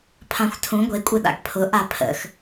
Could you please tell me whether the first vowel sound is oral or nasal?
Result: nasal